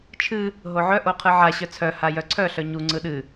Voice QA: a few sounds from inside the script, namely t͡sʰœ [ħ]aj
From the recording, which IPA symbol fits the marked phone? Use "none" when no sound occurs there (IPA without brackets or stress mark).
h